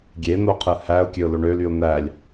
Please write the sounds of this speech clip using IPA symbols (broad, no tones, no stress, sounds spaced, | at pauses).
ɡʲ e n̪ o qʰ ɯ h æ ʊ̯ kʲ ø ʊ̯ l o ɳ ø l y ʊ̯ n̪ æ lʲ